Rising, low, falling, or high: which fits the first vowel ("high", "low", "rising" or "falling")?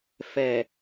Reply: low